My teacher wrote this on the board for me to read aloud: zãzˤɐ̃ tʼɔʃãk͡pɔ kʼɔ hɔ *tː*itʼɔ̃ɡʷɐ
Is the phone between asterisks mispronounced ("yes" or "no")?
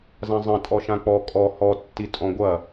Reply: no